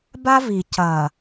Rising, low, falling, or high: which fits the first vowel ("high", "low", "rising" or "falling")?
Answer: high